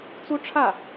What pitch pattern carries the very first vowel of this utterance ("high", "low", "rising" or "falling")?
high